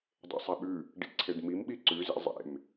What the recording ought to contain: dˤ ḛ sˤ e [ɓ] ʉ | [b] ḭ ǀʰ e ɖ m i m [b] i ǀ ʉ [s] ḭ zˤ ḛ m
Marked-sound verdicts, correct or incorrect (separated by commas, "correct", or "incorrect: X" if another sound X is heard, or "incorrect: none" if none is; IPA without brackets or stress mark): correct, incorrect: ɖ, incorrect: ɓ, incorrect: z